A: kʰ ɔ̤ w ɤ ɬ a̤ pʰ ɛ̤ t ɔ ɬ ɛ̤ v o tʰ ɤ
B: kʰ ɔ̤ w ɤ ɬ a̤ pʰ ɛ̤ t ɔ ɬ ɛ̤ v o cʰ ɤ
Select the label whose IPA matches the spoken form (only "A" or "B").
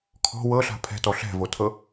A